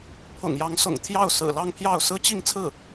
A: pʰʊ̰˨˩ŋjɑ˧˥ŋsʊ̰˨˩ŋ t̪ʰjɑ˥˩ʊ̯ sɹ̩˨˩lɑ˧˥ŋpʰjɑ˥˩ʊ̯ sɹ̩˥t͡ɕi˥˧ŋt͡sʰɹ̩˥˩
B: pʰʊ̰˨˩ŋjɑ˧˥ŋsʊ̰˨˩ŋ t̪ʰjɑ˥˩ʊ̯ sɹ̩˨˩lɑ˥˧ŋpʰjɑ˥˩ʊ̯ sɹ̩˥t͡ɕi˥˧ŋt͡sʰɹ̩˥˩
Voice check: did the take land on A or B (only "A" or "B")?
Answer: B